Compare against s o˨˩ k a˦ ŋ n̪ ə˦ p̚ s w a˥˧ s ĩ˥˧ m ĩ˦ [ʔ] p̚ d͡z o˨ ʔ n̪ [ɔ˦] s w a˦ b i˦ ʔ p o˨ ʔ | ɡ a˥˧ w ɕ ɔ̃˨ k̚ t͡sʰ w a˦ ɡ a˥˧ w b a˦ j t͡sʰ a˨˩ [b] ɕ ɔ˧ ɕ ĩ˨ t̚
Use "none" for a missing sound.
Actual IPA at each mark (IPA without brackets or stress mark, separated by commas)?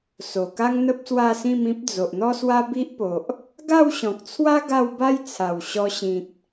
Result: none, ɔ˦, w